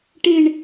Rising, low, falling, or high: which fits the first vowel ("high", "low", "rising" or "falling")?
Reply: high